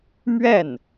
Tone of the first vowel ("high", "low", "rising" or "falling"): falling